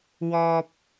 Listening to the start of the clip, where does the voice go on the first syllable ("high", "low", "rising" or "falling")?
high